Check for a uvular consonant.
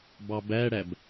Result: absent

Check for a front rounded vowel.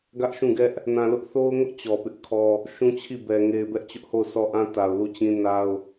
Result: absent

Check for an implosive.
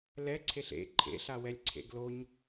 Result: absent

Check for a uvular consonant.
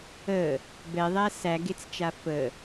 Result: absent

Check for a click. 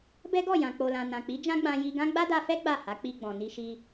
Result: absent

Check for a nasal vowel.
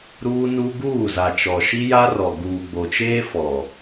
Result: absent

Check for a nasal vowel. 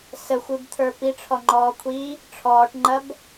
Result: absent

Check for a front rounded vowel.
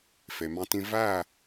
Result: absent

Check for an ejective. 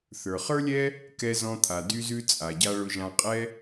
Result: present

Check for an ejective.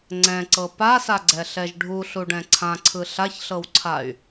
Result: absent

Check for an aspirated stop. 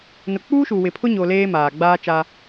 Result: present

